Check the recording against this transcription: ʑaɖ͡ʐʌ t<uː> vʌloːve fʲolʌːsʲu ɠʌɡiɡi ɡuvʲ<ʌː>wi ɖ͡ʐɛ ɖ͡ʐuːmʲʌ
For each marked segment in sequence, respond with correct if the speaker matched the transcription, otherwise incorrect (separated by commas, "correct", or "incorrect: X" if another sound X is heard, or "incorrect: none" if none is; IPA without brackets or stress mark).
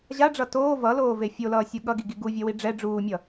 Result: incorrect: oː, incorrect: ʌ